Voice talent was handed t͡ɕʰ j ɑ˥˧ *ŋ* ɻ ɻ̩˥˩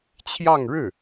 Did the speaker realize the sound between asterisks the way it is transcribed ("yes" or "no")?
yes